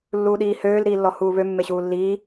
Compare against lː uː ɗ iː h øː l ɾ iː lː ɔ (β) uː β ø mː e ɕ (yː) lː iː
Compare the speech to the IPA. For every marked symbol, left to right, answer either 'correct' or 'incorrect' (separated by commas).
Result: incorrect, incorrect